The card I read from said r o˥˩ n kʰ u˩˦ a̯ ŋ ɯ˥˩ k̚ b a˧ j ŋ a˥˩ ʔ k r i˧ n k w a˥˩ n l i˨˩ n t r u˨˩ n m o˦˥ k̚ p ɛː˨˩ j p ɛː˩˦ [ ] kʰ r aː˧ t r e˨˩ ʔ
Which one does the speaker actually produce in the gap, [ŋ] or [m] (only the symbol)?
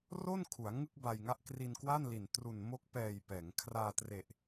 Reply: ŋ